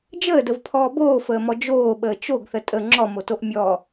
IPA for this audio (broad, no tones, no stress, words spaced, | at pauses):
d͡ʒəːdəvpʰɔː boːfəːmɔ d͡ʒoːɓəː t͡ʃoɡθə tʼə ŋ͡ǁɔmotoʔ mʲɔ